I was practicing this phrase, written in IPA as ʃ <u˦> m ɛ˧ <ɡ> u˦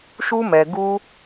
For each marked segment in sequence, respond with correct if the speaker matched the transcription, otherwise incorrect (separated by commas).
correct, correct